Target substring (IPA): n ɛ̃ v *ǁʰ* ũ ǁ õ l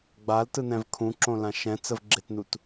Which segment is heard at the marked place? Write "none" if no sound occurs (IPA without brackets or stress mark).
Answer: kʰ